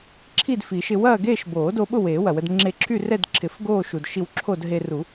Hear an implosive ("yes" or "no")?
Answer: yes